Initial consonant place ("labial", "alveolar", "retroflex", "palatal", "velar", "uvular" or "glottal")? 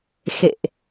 velar